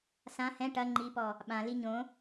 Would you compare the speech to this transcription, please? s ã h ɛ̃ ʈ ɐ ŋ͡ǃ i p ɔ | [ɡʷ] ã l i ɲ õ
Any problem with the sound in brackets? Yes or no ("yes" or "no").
yes